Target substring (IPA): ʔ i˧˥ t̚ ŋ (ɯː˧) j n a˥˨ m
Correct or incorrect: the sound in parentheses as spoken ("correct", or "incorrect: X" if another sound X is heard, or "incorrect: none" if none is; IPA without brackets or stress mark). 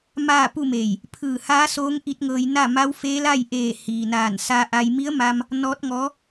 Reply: incorrect: ɤː˧